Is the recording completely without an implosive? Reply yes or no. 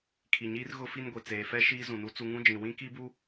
yes